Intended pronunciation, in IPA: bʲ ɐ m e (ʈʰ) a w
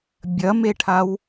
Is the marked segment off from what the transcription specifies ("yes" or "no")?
no